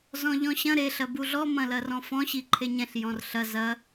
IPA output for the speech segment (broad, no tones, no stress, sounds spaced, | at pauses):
z ɔ̃ ʎ ɔ̃ ɕ ɐ̃ ɾ e ɬ ɐ b u ɮ ɔ m ɐ̃ l ɐ r ɔ̃ f ɔ̃ ɕ i ǃʰ e ɲ ɛ̃ ɬ j ɔ̃ r ɬ ɐ z ɐ